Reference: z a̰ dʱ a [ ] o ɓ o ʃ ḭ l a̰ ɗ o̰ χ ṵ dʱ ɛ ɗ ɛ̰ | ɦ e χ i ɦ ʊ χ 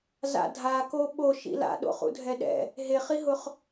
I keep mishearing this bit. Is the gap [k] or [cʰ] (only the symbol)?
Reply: k